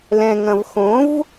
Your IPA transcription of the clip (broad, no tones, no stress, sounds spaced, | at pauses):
l ɛ̃ ŋ ɐ̃ v x õ v